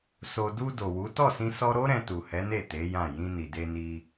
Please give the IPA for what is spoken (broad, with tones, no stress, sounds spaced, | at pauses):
s o˨ d u˧ d o˨ w u˨˦ t ɔ˦˨ s ĩ˧ s ɔ˧ ɾ o˦ ɾ ɛ̃˧ t u˨ h ɛ˨˦ n e˦˨ t e˨˦ j ã˦˨ j ĩ˧ n i˨ d e˧ n i˧